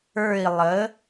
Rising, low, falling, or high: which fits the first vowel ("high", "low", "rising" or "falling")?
falling